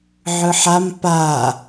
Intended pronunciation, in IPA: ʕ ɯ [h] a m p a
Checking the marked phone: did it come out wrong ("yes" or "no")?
yes